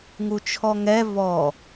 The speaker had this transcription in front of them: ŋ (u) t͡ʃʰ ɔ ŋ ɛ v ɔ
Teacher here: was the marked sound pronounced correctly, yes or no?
yes